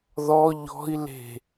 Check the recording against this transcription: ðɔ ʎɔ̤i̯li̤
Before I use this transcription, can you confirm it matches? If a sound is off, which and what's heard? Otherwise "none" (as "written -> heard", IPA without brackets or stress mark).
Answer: i̤ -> e̤